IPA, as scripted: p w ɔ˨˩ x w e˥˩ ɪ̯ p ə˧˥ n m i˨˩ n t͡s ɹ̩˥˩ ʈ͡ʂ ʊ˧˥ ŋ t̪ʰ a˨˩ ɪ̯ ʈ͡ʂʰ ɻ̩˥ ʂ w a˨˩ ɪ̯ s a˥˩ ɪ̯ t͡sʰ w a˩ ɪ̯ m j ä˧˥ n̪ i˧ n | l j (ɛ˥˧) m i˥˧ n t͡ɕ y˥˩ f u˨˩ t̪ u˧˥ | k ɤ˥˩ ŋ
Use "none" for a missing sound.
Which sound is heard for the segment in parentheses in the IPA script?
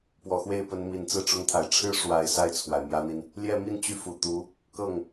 ɛ˥˧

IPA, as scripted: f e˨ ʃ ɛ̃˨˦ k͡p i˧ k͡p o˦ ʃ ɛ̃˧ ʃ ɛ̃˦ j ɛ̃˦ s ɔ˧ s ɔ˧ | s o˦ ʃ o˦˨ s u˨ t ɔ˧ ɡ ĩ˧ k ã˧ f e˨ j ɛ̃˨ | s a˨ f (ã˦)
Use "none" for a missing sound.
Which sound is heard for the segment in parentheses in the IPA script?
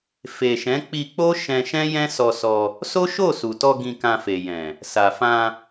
ã˧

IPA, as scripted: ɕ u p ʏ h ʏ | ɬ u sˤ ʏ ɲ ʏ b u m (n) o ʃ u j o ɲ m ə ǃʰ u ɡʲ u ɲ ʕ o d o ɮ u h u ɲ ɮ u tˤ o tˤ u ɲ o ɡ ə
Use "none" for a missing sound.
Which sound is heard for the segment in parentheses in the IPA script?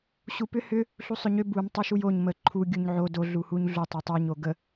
tˤ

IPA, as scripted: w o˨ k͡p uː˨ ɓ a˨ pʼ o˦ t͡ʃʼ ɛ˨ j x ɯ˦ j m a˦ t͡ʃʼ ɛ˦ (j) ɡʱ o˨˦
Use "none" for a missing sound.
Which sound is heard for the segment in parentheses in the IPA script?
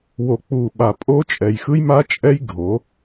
j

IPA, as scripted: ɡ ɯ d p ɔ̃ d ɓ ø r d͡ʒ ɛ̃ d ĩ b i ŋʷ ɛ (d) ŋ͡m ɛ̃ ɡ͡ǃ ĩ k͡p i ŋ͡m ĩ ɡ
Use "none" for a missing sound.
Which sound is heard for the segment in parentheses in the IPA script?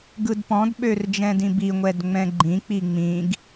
d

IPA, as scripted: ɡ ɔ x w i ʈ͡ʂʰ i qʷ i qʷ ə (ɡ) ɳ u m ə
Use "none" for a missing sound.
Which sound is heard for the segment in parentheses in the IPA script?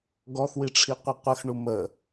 x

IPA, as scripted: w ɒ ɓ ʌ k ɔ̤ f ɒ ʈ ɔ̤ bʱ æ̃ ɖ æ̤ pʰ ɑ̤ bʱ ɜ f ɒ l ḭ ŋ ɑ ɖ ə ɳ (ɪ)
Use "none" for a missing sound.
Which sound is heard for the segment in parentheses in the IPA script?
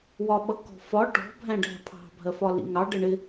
ɪ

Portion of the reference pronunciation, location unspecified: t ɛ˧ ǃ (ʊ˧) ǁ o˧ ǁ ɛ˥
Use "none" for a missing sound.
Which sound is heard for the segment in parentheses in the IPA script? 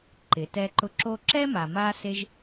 ʊ˧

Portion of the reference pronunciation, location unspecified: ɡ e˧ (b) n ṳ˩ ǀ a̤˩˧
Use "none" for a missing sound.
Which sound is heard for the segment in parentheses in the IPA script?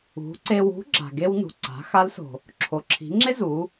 w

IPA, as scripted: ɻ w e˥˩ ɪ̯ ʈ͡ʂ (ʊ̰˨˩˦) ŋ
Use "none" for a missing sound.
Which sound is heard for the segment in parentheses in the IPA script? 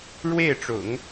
ʊ̰˨˩˦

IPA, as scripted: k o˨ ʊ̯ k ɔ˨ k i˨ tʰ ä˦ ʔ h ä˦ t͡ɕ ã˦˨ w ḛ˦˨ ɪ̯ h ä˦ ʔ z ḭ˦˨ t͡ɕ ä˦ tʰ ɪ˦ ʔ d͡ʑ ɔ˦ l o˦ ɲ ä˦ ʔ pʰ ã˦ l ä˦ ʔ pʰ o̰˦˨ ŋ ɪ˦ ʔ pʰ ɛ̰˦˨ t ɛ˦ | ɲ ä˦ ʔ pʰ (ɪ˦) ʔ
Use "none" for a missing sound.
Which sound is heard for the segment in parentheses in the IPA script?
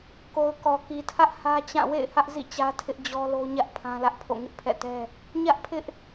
ɪ˦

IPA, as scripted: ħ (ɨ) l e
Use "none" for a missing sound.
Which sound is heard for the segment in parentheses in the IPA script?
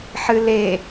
ɨ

